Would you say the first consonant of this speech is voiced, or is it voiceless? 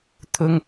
voiceless